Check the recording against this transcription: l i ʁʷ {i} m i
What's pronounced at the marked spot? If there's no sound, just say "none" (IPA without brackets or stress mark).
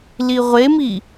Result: e